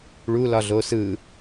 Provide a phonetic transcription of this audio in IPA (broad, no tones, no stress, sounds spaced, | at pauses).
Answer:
ɭ u l ɒ ɮ o s ɯ